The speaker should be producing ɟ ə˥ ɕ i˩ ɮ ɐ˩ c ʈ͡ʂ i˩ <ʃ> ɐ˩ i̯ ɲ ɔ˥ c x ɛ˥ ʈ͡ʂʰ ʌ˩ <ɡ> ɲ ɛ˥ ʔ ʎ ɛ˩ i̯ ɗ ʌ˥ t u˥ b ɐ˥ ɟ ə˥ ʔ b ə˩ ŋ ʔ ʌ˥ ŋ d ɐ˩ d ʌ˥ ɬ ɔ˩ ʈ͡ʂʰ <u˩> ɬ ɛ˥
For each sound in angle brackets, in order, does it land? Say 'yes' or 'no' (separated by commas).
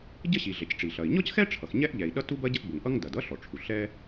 no, no, yes